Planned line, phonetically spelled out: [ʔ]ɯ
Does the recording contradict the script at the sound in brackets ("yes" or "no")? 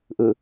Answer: no